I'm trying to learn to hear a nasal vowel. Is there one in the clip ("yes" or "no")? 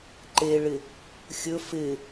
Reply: no